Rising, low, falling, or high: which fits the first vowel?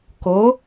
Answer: rising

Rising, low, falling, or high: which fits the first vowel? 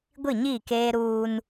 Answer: falling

